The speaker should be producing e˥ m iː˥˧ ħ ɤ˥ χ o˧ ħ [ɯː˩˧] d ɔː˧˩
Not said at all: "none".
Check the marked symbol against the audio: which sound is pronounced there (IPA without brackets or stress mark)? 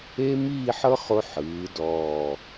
ɯː˩˧